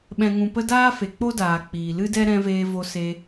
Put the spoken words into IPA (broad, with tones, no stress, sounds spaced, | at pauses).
ɓ ɛ̃˨ ŋ ũ˨ p ə˧ d aː˦ f e˨ k͡p o˦ d aː˨ k͡p iː˨ l ɨ˦ d ɛ˦ ɾ ɛ̃˧ v eː˧ v o˧ s e˧